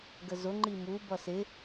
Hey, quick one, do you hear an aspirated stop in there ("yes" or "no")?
no